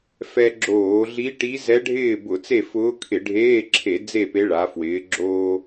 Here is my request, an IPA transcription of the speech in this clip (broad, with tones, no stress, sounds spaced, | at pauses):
f ɛ˧ ɡ͡ǁ oː˧˩˧ ɮ i˧˥ ʈ i˧˥ z ɛ˧˥ ɖʱ ɪː˥˨ b ʊ˧˩˧ t͡s e˥˨ f ʊː˧˥ kʰ ɪ˧˩˧ ɖʱ eː˧˥˧ ǁʰ e˧˩˧ d͡z e˥˨ p e˧˥ ɭ a˩˧ f w ɪː˩˧ ɡ͡ǁ oː˧